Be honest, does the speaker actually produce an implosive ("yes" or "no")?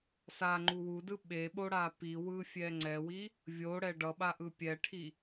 yes